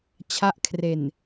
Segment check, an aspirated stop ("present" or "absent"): present